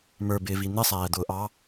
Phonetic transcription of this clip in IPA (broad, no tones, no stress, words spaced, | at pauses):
mə˞bɪːvi n̪ɪsˤæːd̪ʊː ʔɑ